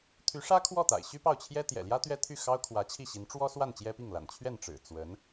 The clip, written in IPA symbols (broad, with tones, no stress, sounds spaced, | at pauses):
t̪ʰ y˧˥ ʂ ä˥ kʰ w ɔ˥˩ t̪ a̰˨˩ ɪ̯ ɕ y˥ p ɑ˥˩ ʊ̯ t͡ɕʰ j ɛ˥ t̪ j ɛ̰˨˩ l j ä˥ t̪ ɥ ɛ˥ t̪ʰ y˥˩ x ɑ˥ ʊ̯ kʰ w ä˧˥ t͡ɕʰ i˥˩ ɕ i˧˥ n ʈ͡ʂ w ɔ˥ s w a˥˩ n t͡ɕ j ɛ˥ p i˥˩ ŋ l a̰˨˩ n t͡ɕʰ ɥ ɛ˥˩ n ʈ͡ʂ ɻ̩˨˩ t͡s w ə˧˥ n